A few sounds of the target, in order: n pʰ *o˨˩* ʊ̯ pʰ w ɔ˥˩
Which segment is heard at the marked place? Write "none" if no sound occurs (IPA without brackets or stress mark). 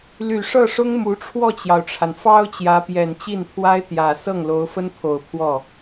o˨˩